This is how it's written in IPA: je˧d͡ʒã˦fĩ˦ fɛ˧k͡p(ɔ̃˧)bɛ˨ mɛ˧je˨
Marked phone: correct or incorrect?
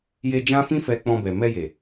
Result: correct